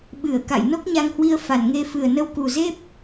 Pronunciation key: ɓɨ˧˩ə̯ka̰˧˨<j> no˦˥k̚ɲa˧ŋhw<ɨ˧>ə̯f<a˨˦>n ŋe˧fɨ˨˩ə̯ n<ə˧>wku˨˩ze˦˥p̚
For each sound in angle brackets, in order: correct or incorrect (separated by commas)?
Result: correct, incorrect, incorrect, correct